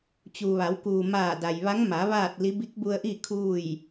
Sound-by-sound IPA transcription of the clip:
t͡ɕu˩ʋa˩˧w kuː˩maː˧˩da˩jʋa˧˥ŋ ma˩˧ ʋaː˥˨t̚li˧˥ bi˧˥k̚bu˧ə̯ʔi˥˨ kʰuː˥˨j

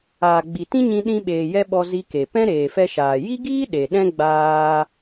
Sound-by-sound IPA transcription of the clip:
aː˨ɡ͡bi˨tĩ˦ɲĩ˧ ɗĩ˧ɓeː˨jɛ˧ ɓɔ˧zi˧ke˨ pɛ̃˦ɾeː˨fɛ˧ʃaː˨ ji˦ɡiː˦ ɗe˨ɗɛ̃˦ ɡ͡baː˧

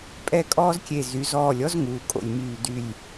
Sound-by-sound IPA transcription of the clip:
pʼɛ˥˧kʼɔː˥zkʲe˧˩ zy˩˧zɔː˧˩lʲɔ˥z ŋuː˩˧kʼo̰˧˩lʲmyː˧˩dy˧˩lʲ

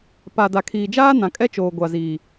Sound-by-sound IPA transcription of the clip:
pa˨da˨kʰiː˨d͡ʒaː˦ nã˨kʼɛ˦t͡ʃoː˨ ɡʷa˨ziː˨

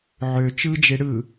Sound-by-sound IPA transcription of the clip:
ʕø t͡ʃɯd͡ʒe ɽɯ

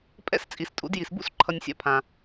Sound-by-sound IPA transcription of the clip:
pʼɛ̰˥s t͡sʼi˩stʼṵ˧d ji˩sbṵ˥s ǃʰʌ˧nʲsʲa̰˥pʰã˩

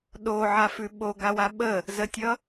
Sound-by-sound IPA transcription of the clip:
ɗoʕafʉ ɓoɡawa ɓə | zətʲʌ

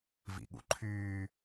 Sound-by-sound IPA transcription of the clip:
vḭɠṵǃʰyː

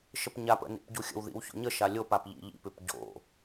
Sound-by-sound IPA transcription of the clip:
ʃəpɲapə̰ nḭpɟuxʲə̰wðḭw ço̰ɲəʃa lʲopap ʎḭʎḭpʉp ɟo̰

